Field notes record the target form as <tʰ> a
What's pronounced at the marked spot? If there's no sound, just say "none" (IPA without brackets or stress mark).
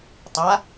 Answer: tˤ